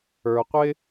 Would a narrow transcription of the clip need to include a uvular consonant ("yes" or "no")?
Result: yes